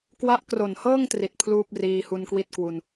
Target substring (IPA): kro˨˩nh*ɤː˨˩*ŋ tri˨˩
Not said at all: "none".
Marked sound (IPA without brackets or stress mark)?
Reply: ɤː˥˩